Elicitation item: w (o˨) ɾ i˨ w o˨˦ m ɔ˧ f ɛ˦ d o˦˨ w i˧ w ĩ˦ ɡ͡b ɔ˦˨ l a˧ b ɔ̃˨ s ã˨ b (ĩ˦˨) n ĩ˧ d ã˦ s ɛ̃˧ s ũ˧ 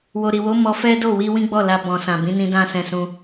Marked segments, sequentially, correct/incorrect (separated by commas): correct, incorrect